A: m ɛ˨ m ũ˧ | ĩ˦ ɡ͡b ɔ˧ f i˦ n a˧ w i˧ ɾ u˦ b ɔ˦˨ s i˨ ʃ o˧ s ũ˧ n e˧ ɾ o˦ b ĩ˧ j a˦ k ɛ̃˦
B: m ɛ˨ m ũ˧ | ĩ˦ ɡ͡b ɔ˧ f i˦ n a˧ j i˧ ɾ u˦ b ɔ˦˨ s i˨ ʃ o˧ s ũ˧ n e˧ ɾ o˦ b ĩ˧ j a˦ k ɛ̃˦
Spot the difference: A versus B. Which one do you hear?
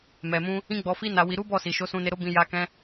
A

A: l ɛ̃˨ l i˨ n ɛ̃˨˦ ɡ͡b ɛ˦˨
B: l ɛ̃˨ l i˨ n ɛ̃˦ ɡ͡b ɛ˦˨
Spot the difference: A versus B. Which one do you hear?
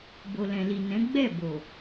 A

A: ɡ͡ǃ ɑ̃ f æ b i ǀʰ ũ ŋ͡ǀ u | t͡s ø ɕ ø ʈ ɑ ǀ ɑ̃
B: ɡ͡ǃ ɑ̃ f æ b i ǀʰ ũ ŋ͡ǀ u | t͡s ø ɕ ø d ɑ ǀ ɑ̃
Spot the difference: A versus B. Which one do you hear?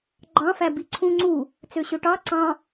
A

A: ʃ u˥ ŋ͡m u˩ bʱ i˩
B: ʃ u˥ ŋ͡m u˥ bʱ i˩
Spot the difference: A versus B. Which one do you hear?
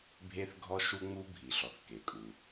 B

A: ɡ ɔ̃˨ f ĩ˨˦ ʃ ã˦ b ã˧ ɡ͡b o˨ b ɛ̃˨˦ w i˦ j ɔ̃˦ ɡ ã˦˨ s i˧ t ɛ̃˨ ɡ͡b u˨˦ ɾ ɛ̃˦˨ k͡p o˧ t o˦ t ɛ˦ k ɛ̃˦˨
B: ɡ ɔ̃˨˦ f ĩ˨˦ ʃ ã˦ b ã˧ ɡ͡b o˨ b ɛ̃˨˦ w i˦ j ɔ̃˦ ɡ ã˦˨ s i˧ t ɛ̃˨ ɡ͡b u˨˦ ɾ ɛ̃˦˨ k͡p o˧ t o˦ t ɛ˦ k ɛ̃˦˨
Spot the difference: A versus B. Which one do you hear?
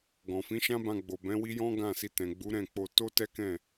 A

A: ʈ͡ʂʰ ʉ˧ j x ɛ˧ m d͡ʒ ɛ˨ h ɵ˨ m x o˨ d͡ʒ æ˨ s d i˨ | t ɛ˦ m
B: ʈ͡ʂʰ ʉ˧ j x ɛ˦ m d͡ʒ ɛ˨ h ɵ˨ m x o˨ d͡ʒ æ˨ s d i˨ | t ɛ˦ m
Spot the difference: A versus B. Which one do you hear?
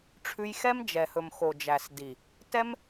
B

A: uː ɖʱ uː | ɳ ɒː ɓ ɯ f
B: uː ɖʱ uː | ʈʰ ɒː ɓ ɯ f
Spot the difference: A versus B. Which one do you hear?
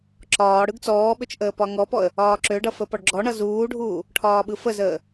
B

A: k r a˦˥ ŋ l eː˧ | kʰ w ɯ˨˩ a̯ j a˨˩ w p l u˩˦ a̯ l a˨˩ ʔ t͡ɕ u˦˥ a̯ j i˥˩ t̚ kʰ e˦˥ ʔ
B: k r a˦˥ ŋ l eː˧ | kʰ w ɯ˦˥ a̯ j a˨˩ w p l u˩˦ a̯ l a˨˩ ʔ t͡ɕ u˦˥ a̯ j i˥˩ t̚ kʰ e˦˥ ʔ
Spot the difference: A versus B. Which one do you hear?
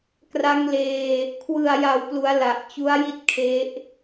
A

